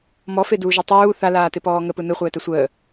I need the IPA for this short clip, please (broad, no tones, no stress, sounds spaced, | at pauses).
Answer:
m ɔ f e d uː ʒ ɛ tˤ uː θ a l aː t ɪ p ɔː ŋ ə p ɯ n ɯ χʷ ɛː t ɛ sʷ əː